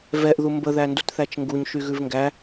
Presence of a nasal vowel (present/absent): absent